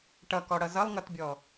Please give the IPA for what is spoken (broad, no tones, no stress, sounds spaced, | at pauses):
ʈ ʌ k ɔ ɽ ʌ z ʌ lˠ ŋ ʌ t bʲ ɔ